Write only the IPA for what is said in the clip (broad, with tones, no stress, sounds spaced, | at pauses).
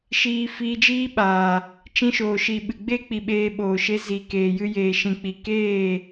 ʃ iː˦ f iː˧ d͡ʒ iː˦ ɓ aː˨ | t͡ʃ ĩ˧ ʃ oː˨ ʃ i˨ ɓ ɨ˨ ɡ͡b e˦ k͡p i˨ ɓ eː˧ ɓ oː˨ ʃ e˧ z i˨ k eː˨ j ɨ˧ j eː˨ ʃ ĩ˨ k͡p i˨ k eː˦˨